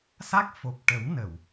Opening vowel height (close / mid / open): open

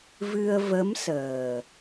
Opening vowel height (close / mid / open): close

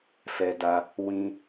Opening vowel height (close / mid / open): mid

